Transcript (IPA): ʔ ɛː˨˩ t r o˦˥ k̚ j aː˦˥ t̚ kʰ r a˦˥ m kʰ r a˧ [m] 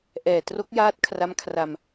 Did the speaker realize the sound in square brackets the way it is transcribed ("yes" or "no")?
yes